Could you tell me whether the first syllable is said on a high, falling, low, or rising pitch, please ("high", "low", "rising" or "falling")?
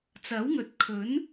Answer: rising